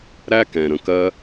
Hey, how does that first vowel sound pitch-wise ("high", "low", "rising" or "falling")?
high